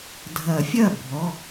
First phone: dʱ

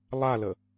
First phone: lˠ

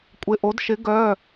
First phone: kʷʼ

